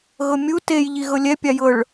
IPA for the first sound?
ɣ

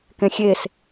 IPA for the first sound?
k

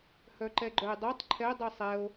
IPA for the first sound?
h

